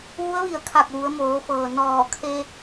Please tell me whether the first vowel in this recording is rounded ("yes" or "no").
yes